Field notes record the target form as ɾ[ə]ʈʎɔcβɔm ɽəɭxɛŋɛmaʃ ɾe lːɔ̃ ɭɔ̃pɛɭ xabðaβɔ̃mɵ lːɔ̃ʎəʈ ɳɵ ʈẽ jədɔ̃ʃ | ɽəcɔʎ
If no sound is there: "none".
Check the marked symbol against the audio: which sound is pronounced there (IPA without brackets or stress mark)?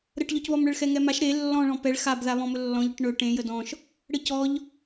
ə